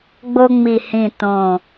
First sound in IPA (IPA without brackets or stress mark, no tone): ɡ͡b